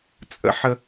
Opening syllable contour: low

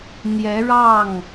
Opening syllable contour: rising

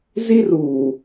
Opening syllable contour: high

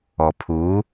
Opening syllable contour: low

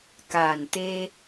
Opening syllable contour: low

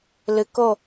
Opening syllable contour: low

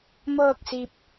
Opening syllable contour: falling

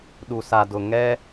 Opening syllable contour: low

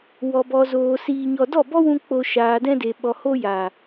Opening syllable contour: low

